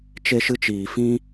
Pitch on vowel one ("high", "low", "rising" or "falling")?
high